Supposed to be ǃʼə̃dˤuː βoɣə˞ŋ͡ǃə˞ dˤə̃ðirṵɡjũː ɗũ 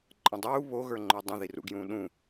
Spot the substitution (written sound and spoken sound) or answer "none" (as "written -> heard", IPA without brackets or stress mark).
none